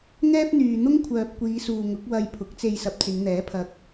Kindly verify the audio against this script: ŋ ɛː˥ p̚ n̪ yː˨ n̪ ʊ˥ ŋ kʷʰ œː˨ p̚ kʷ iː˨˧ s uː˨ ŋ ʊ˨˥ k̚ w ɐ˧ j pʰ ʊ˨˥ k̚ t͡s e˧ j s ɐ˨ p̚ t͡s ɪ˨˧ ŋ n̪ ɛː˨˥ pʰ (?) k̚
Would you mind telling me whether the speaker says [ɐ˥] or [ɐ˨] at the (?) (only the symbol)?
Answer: ɐ˨